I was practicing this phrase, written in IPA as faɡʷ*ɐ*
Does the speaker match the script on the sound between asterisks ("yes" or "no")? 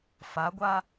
no